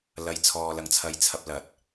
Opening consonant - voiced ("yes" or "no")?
yes